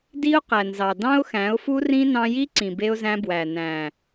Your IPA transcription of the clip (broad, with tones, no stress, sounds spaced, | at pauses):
d i˦ ʊ̯ q æ˨ n z ɑ˨ d ɑ̃˦ ʊ̯ x æ̃˨˦ ʊ̯ f u˦ r ĩ˦ n ɑ̃˧ j i˦ ǀ ĩ˨ b e˧ ʊ̯ z æ̃˧ b w æ˨ n æ̃˨